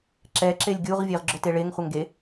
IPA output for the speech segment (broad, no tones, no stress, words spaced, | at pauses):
ǁɛǁelʲ ɡʲuʁ vʲeʁɡ͡ǁoteɭeŋ χʷɛŋɡe